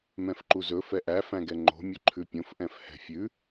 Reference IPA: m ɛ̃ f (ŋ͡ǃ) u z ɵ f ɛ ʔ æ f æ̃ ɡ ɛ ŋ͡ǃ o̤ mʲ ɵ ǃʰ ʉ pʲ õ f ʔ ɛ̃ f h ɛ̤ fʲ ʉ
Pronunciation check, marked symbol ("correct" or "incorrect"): incorrect